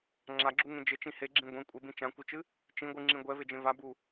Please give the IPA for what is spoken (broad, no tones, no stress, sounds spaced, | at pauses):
ŋ͡ǁ a ɡ͡ǁ u ŋ ẽ d͡ʒ ɘ t͡ʃ ĩ h e ɡ͡ǁ ĩ ɡʷ ẽ kʷʼ e b ĩ t͡ʃ ã kʷ ɨ t͡ʃ ɨ | t͡ʃ ĩ ɡʷ ɨ ŋ͡ǁ ĩ ɡʷ ɛ v e d͡ʒ ẽ v a b u